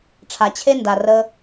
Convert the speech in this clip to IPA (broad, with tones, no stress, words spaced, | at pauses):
ʈ͡ʂʰa˨t͡ɕʰe˦nda˨ rə˧